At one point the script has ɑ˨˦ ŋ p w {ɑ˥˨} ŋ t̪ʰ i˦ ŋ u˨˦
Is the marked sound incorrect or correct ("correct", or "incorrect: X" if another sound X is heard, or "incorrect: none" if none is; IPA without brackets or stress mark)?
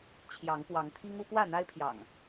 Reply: incorrect: ɑ˨˦